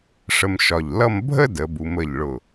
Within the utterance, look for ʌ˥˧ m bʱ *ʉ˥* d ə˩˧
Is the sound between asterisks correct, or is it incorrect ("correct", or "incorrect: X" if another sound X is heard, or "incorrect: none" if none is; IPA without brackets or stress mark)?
incorrect: ə˥